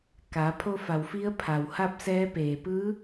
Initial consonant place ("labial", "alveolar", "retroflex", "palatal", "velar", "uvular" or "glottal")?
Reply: velar